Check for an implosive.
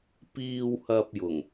absent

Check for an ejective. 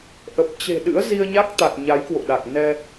absent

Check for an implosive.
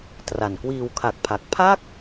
absent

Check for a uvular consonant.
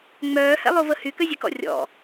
absent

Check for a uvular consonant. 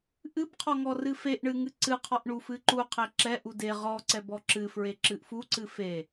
present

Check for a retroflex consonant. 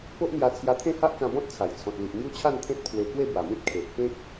absent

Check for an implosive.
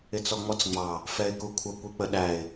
present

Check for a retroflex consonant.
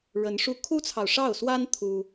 present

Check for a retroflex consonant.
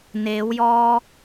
absent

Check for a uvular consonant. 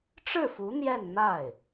absent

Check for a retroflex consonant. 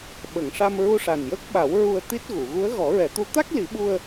present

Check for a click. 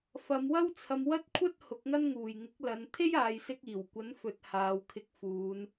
absent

